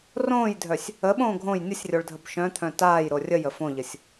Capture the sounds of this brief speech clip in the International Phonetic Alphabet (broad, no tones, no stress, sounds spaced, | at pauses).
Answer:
r õː j dʱ œ sʲ | ə ɓ õː ɡʱ õ j nʲ ə sʲ rʲ o ɭ dʱ ə b ʃ œ̃ t̪ʰ œ̃ t aː j ɾ o rʲ ə j ə f õ ʎ ə sʲ